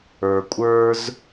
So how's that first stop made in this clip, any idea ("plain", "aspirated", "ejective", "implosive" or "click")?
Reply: ejective